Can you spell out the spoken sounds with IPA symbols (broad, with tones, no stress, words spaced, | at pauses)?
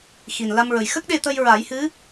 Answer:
xi˨˩nla˧mɹə˨˩j xə˦˥k̚ɗe˧t̪ə˧j ɹa˨˩˦jhɨ˧˥